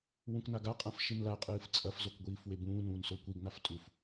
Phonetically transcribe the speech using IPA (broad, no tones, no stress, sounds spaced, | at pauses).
w ũ k n a ɡ a qʼ ã f ʃ i n l a qʼ ɨː f t͡sʼ ɐ f z o k ɡʷ iː f w e b ũː n ũː n s o kʷ i ɡ n a f tʼ u f